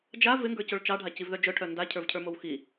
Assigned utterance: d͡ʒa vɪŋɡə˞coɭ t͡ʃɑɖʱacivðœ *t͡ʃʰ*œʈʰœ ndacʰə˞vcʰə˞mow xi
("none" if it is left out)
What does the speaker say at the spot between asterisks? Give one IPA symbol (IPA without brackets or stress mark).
d͡ʒ